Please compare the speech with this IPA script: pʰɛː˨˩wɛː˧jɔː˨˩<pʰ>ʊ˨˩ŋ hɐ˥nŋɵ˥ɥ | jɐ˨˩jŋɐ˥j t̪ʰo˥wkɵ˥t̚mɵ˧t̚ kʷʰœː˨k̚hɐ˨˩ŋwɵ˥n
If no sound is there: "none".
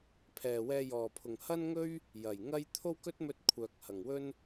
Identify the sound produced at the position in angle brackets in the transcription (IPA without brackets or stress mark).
pʰ